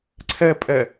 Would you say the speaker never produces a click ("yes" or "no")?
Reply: no